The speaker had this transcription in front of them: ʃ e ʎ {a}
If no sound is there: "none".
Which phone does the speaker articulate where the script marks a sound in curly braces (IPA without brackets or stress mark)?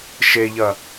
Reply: ɐ